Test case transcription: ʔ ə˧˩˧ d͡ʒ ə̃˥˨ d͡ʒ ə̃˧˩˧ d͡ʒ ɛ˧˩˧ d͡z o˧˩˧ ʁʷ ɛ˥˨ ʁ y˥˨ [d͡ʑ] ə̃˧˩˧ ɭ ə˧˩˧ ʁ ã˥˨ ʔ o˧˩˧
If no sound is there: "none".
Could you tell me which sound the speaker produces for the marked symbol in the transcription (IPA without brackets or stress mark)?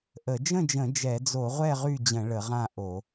d͡ʑ